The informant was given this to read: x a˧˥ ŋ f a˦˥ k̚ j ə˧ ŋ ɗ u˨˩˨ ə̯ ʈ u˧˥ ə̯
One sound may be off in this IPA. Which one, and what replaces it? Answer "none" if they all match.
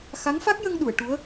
none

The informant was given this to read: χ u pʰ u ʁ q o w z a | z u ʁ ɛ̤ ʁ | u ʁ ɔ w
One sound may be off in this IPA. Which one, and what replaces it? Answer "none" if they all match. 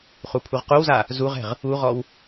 none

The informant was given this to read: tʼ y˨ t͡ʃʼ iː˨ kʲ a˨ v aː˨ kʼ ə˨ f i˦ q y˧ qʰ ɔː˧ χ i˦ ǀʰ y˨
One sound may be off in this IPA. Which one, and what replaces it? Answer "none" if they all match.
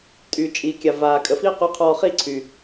none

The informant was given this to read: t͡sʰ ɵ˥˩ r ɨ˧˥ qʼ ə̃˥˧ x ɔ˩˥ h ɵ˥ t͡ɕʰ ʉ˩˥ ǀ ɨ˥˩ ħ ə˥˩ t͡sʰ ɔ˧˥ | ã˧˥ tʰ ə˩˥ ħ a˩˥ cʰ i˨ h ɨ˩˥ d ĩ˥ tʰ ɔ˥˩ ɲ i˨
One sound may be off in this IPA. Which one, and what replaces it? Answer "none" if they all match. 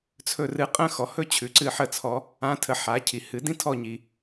none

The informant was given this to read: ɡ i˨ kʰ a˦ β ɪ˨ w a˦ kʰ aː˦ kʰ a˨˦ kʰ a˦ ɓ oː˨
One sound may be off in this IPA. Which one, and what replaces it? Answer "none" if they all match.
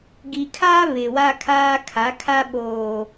none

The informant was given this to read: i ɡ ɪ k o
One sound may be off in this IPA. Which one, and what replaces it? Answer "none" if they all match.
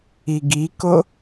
ɪ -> i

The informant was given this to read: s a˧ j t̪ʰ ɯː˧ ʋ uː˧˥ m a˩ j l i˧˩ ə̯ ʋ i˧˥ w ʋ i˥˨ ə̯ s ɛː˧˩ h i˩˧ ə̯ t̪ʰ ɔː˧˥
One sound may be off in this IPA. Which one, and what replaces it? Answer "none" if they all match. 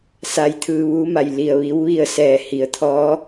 none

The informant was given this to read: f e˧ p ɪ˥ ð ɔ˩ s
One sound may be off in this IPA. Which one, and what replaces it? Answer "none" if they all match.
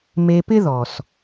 f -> m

